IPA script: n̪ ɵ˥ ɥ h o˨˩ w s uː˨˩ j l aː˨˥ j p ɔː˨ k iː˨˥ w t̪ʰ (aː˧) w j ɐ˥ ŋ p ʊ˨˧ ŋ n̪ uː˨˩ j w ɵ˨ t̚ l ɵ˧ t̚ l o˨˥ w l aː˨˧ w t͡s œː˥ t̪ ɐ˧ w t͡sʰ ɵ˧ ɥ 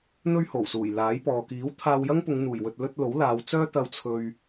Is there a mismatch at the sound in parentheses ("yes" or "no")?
no